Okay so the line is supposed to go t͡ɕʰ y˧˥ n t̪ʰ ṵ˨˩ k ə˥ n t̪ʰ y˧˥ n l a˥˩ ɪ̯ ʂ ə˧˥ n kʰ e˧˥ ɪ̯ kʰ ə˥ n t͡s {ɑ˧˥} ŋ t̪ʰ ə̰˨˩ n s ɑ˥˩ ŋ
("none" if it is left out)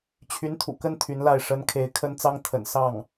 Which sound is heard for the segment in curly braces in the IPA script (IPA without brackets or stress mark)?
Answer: ɑ˥